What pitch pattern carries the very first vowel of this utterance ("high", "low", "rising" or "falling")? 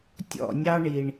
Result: falling